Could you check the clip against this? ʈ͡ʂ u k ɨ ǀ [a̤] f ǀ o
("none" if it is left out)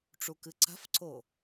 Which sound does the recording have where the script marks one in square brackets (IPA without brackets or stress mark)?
a̤